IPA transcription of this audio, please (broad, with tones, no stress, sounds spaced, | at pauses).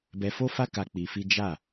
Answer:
b ɛ˧ f o˦ f a˦ k a˧ k͡p i˧ f i˦ d͡ʒ a˦˨